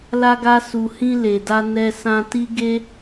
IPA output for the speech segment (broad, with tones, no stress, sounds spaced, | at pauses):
l a˧ ɡ a˧ s u˨ h ĩ˧ l e˨ d a˧ n ɛ˧ s ã˧ t i˦ ɡ e˦